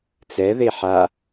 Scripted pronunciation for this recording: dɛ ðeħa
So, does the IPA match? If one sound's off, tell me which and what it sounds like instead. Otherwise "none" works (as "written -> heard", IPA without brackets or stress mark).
d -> t͡s